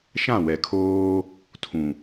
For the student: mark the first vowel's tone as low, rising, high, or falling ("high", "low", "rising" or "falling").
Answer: falling